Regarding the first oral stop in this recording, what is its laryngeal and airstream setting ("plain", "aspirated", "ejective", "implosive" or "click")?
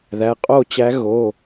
ejective